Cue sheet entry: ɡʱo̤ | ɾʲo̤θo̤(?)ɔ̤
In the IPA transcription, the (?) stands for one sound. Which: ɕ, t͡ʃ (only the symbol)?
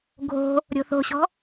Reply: ɕ